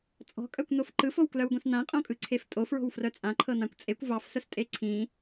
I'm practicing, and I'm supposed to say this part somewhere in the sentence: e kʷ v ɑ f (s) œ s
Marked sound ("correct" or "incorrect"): correct